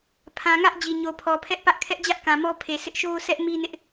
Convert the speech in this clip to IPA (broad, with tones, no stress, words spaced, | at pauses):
pʰã˨ŋä˦ʔ d͡ʑi˨ɲo˨pʰɔ˨pʰɛ˦ʔ pä˦ʔkʰɛ˦ʔd͡ʑä˦ʔkã˨ mɔ˦pʰe˨ sʰɪ˦ʔʃo˦sʰɛ˦ʔ mi˦nɪ˦ʔ